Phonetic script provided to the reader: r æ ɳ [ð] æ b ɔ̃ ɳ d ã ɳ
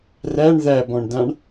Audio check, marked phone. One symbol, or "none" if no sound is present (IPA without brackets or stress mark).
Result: ð